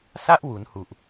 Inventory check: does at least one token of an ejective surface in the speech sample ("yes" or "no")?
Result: no